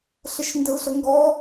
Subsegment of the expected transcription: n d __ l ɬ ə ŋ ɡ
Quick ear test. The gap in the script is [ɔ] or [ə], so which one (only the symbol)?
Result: ə